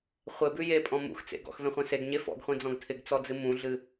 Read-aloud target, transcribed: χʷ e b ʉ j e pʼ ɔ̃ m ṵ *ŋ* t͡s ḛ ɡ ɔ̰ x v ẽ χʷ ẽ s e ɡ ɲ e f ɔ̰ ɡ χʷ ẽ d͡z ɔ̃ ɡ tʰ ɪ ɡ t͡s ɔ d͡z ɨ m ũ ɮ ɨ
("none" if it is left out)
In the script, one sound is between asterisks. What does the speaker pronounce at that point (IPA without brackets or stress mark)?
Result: x